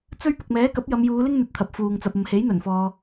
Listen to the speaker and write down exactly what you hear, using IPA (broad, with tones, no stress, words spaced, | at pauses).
t͡sɵ˥ɥ pʊ˨k̚mɛː˨˥kɐ˨˥p̚ jɐ˨˧mjuː˨˧lɪ˥ŋ n̪ɵ˧t̚t̪ʰɐ˨p̚fuː˨ŋ t͡sɐ˨p̚ɐ˨mhe˨˥j n̪ɵ˨˩nfɔː˨